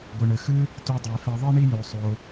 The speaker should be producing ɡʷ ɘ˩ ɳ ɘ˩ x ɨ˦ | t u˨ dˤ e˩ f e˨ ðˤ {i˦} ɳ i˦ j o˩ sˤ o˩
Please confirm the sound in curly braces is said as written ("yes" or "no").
yes